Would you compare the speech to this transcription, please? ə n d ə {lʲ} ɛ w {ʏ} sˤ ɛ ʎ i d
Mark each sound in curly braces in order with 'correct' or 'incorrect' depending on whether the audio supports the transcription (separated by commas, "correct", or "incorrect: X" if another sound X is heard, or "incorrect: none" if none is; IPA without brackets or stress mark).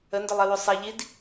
incorrect: lˠ, correct